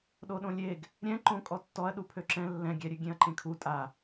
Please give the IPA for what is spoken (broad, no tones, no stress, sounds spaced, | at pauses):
ɗ o ɗ õ lʲ e ɡ | ɾʲ ɛ̃ ǃ õ kʼ ɔ tː ɔ ɐ̯ ɗ u pʰ ø ǁ ɛ̃ lː ɛ̃ ɡʲ ɛ ɾʲ ø ɡʲ ẽ ɐ̯ ǃ ẽ kʰ u tʼ a